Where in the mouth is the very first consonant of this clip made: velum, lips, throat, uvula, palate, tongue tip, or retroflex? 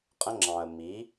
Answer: uvula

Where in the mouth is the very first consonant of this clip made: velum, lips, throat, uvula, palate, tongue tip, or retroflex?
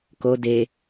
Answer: velum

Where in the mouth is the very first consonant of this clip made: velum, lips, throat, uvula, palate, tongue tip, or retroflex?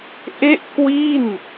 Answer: throat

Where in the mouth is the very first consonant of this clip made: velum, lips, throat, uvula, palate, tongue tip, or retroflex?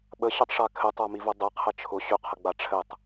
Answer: lips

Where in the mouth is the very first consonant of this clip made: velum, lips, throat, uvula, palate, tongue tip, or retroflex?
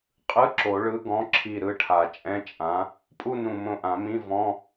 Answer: uvula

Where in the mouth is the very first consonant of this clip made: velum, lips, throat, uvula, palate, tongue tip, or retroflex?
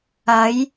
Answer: palate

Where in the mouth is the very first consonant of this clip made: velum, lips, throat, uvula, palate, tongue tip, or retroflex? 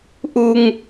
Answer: throat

